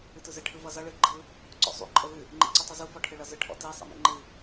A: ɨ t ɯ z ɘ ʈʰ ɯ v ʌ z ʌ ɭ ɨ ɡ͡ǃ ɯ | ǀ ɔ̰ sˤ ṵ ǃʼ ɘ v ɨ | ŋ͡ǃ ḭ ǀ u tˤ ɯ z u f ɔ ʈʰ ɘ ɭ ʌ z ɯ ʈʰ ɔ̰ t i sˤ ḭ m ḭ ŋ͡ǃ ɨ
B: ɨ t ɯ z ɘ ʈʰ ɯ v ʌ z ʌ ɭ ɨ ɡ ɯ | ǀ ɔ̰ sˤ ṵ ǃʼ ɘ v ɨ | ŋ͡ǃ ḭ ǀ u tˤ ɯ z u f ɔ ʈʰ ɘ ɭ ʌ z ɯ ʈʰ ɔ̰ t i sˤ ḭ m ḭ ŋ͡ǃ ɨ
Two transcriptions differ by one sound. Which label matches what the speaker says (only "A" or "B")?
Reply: A